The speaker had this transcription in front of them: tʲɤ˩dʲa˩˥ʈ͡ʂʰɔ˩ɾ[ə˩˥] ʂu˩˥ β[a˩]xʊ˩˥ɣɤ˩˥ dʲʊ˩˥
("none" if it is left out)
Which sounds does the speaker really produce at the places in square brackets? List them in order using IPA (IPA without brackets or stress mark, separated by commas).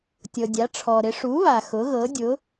ɪ˩˥, a˩